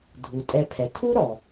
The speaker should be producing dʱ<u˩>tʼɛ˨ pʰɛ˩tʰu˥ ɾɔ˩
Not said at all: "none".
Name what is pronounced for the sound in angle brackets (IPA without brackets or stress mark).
u˩